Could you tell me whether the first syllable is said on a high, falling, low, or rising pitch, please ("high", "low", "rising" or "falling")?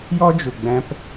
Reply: high